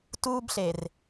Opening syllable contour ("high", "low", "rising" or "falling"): high